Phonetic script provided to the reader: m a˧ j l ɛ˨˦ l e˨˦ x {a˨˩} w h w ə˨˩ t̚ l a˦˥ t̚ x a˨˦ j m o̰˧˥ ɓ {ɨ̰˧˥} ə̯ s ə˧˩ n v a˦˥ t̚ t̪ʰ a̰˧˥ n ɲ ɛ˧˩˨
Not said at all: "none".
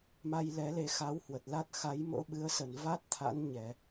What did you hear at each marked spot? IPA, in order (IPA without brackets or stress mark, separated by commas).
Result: a˨˦, ɨ˨˦